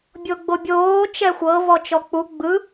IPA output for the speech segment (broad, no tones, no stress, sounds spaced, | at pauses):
bʲ o ɡ͡b o bʲ oː t͡ʃ ɛ xʷ ɤ v ɔ t͡ʃ ɔ k͡p u ɡ͡b ɯ